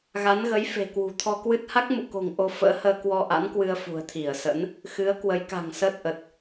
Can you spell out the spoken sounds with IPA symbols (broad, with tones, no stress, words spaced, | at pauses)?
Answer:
ɣa˨˦n ɣə˨˦j fe̤˨˩ kwṳ˨˩t̪ʰɔ˧kwɨ˦˥t̚ ha˦˥k̚mṵ˧˨ko̤˨˩ŋ ʔo˧fə̰ː˧˥həː˧ kwɔ˧ʔa̰˧˥nkwɨ˧ə̯ fṳ˨˩ə̯t̪ʰi˧˩ə̯sə̰˧˥n | xɨ˨˦ə̯kwə˨˦jka̤˨˩ŋsəː˦˥t̚ ʔə˨˩t̚